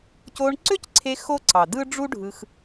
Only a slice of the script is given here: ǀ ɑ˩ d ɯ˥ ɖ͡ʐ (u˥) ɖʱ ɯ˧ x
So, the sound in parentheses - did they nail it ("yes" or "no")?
yes